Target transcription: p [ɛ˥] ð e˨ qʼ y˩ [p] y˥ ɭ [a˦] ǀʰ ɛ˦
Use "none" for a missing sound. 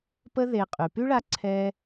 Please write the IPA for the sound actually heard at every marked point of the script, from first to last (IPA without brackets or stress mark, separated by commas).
ə˥, p, a˦